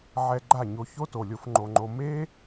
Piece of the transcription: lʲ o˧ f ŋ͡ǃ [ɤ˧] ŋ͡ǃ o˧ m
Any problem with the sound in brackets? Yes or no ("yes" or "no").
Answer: yes